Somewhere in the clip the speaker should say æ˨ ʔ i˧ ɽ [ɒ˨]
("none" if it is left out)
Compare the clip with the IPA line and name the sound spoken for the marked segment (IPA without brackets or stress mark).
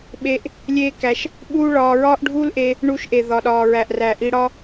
ɒ˦